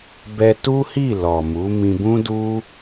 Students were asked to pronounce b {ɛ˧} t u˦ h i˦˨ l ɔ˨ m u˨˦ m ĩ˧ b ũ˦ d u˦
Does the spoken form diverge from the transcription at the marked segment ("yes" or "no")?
no